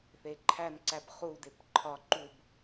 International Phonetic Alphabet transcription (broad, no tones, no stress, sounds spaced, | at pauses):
θ e ǃʰ æ n ǀ æ b χ u d e p ǃʰ ɒ ǃ u b